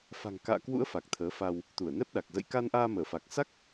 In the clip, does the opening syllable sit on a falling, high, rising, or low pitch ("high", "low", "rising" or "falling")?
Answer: low